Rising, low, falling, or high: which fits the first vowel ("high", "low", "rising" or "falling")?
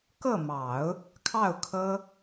falling